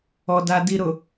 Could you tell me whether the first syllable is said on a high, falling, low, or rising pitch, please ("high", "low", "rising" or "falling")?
low